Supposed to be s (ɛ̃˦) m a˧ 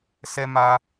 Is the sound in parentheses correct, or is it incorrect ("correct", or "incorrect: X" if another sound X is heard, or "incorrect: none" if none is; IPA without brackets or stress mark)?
incorrect: ɛ˦